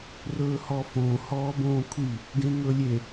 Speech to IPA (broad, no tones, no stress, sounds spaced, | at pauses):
r ɵː h ɔ f õ h ɔː b õː kʷʰ i | ɡ ẽ ŋ ɵ lʲ e